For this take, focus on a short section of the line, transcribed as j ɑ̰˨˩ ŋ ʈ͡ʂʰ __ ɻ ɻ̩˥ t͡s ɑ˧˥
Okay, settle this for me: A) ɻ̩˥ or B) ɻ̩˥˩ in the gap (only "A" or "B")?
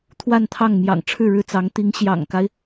B